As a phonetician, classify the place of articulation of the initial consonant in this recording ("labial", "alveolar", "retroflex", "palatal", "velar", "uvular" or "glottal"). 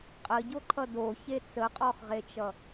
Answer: uvular